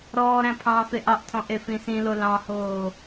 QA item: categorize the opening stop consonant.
aspirated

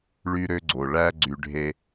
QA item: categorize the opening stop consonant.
click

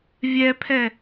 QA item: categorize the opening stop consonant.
aspirated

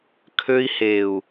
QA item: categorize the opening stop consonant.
aspirated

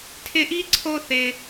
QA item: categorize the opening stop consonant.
aspirated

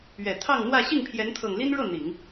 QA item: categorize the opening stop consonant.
aspirated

